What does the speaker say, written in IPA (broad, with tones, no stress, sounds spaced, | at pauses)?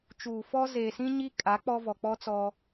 t͡ʃ uː˨ f ɔ˦ z eː˨ s ĩ˦ ɲ i˦ kʼ a˨˦ k͡p ɔ˦ v ɔ˨ k͡p ɔ˦ t͡s ɔ˦